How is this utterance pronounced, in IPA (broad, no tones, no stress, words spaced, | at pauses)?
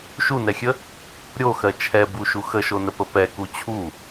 ʃunɛxʲə | ɾʲoxɜ t͡ʃʰɛbuʃu xəʃonəpə pɛku t͡ɕʰu